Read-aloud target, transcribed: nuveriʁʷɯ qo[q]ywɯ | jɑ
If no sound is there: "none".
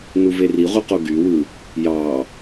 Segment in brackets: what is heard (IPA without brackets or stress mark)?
ɡ